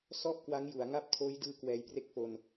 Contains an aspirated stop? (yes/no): yes